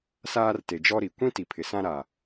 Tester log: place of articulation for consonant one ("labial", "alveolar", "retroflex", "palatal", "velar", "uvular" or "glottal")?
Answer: alveolar